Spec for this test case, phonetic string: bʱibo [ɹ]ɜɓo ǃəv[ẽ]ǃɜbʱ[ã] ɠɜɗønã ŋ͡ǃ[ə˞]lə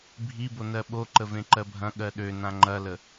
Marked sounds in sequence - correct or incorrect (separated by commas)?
incorrect, correct, incorrect, incorrect